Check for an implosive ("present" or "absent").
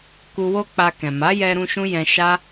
absent